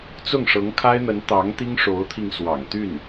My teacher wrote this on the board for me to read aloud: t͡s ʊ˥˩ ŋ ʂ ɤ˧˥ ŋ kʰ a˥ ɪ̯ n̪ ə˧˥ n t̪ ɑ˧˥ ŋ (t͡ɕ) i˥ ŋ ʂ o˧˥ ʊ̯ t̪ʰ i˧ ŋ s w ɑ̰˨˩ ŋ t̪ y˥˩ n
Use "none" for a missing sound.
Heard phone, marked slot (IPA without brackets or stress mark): t̪